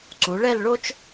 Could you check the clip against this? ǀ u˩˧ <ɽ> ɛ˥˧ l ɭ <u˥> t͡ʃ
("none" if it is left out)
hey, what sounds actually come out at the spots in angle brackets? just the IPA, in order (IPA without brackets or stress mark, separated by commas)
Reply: ɭ, o˥